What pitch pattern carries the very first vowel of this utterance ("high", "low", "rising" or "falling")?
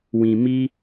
low